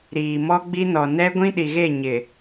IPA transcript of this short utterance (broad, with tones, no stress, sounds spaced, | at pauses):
ɾ iː˨ m ɔ˦ ɡ͡b i˦ n ɔ˨ n ɛ˦ ɡʷ ĩ˦ ɗ i˨ ɣ e˦˨ ɲ ɪ˨